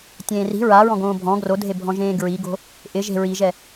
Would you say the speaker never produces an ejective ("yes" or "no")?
yes